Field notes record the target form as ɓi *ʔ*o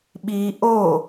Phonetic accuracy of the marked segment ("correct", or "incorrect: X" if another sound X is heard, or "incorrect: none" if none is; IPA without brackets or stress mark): correct